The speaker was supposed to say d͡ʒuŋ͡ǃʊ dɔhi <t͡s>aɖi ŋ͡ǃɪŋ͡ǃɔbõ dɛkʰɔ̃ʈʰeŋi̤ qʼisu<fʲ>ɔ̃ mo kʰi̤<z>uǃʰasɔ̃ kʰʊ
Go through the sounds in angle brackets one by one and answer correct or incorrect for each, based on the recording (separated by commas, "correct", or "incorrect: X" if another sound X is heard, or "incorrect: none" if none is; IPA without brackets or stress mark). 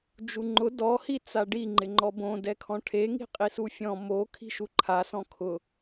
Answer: correct, correct, incorrect: ʃ